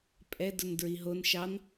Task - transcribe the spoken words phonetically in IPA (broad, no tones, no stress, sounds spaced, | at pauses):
pʼ ɛ d ʊ n d ɹ i ɦ o n ʃ ɑ n